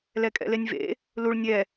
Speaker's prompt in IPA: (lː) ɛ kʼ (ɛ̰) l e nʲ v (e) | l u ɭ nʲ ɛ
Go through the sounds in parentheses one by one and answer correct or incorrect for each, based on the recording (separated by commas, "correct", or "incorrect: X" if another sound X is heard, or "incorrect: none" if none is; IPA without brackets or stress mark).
incorrect: l, correct, incorrect: ḛ